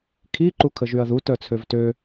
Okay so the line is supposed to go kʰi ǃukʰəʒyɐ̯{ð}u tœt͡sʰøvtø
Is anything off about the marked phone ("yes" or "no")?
no